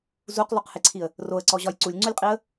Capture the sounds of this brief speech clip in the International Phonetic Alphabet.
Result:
z u q lˠ u q h e ǀʰ i ə̯ | r o ə̯ ǀ ɔ ʑ ɒ j ǀ u lʲ ŋ͡ǀ u lʲ qʼ i ə̯

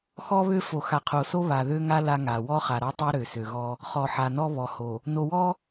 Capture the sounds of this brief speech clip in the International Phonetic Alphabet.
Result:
x ɔ˦ β ø˦ f o˨ x a˨ qʰ o˨ s o˦ β a˨ ð ø˦ ŋ a˦ l a˦ ŋ a˨ w ɔ˦ χ a˨ ɾ ɔ˦ tˤ o˦ ɾ ø˨ s ø˨ ɣ ɔ˦ | χ ɔ˨ ħ a˨ n ɔ˦ β ɔ˨ h o˨ | n o˨ w ɔ˦

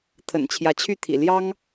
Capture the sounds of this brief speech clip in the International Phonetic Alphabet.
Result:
t̪ʰ ə̰˨˩ n t͡ɕʰ j ä˨˦ t͡ɕʰ y˥˨ t̪ʰ ḭ˨˩ l j ɑ˦ ŋ

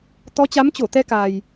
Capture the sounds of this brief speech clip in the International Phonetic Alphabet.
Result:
t̪ ɔ˨˦ t͡ɕ a˨˦ m t͡ɕ o˧˩ t̪ ɛ˧ k a˨˩ j

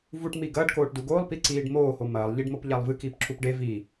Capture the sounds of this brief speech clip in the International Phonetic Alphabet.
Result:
v u ʈ m i ɡ ɐː ɖ k oː ʈ d u ɡ oː lˠ p i ǀ iː ɖ m oː h o m ɐː lˠ ʎ i ɖ m o p ʎ a lˠ v ɨ k iː p ǁ u p ɖ e v i

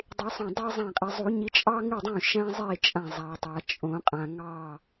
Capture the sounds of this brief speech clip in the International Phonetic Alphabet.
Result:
dˤ i˨˩˦ sˤ õ˧˩ dˤ a˥ zˤ ã˧˩ qʼ i˩ zˤ u˨˩˦ ɲ i˨˦ t͡ʃʼ ɑ˥ ŋ ɨ˥˩ dˤ ũ˥˩ ʃ æ̃˥ zˤ i˥˩ t͡ʃʼ ã˧˩ zˤ a˩ tˤ a˩ t͡ʃʼ õ˨˩˦ qʼ ã˩ ŋ ɑ˧˩

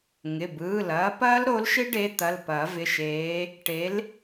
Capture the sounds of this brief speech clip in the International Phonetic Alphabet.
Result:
ŋ ɪ˩˧˩ b ɯː˩˧˩ l ɐː˨˦ p ɐː˦˥ l ɾ o˨˦ l ʃ ɪ˦˥ ɖ e˨˦ t̪ ɐ˩˧˩ l p ɐː˨˩˦ v ɪ˩˧˩ ʃ eː˨˦ | ʈ e˨˦ l

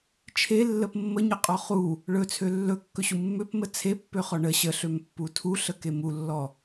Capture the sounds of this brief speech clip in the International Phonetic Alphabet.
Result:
t͡ʃʰ e lː ə p mː ə ɲ ə qʼ ɔ χ u | ɭ ɵ t͡sʰ ø lː ɵ kː ɵ ɕ u mː ø p m ə t͡sʰ e pː ø χ ɔ ɳ ə ɕ ə ɬ ø m pː u tʰ u ɬ ə k e m u lː ɔ

